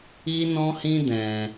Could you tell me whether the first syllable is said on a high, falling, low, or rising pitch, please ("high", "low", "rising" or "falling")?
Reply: high